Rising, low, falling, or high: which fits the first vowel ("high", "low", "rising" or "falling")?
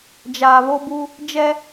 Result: low